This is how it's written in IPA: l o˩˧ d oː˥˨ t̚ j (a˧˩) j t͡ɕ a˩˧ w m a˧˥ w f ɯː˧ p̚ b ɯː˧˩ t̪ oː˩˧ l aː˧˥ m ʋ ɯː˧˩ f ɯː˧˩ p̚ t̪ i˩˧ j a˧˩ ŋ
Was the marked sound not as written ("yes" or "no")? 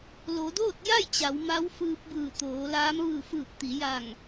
yes